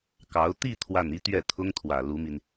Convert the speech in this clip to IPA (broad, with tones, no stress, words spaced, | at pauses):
kɑ˧˥ʊ̯ t̪i˥˧ t̪ʰwa˥˩ni˥ t̪ɥɛ˥˩t̪ʰʊ˥ŋt̪ʰwä˨˩ lu˧˥mi˧n